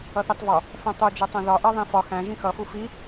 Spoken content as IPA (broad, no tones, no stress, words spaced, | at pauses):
ʌθitˤvɒ | fɛ̃tˤud͡ʒɛtˤɛ̃ ðɒʔɜ ðˤĩfɒ xæ̃ ʒĩxʌfu fi